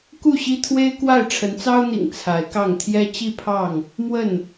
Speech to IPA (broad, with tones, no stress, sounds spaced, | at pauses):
k u˥˨ ɕ i˦ t̪ʰ w e˦ ɪ̯ k w a˥˨ ɪ̯ ʈ͡ʂʰ ə˨˦ n t͡s ɑ˦ ʊ̯ n̪ ḭ˨˩ ŋ t͡sʰ a˨˦ ɪ̯ k ɑ˥˨ ŋ t̪ʰ j ɛ˦ t͡ɕ i˥˨ pʰ ɑ˥˨ ŋ | m w ə˥˨ n